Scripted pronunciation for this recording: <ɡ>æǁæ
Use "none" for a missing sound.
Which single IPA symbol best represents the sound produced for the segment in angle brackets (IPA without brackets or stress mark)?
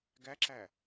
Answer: ɡ